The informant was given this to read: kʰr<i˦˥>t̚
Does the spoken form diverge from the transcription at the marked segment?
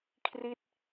no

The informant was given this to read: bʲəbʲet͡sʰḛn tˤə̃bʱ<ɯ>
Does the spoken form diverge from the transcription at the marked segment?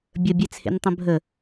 yes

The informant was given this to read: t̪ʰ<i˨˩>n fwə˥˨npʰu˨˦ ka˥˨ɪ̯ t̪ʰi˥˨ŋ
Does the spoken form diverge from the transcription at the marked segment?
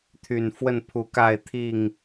yes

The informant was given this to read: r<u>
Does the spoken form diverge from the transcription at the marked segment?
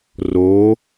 yes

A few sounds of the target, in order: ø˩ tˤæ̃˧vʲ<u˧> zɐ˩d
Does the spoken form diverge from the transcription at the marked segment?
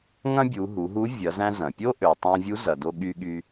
yes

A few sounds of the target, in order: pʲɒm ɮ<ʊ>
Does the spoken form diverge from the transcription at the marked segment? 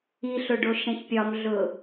no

